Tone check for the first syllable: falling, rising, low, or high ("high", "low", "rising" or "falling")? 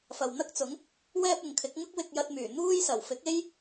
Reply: low